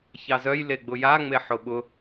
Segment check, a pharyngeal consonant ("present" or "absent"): present